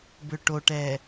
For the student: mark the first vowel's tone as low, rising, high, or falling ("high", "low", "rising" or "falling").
low